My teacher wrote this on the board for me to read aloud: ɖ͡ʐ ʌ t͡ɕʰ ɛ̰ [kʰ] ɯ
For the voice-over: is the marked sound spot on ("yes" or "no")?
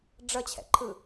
no